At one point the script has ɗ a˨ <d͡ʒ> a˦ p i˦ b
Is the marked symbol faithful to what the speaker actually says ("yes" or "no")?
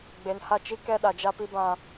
yes